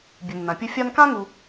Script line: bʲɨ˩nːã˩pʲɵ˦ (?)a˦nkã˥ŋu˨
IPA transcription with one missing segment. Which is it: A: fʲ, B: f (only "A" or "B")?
A